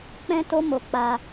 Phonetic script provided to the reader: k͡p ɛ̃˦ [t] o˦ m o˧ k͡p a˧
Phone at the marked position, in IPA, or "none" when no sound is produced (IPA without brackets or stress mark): t